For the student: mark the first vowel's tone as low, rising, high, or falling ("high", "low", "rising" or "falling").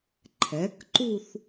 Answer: rising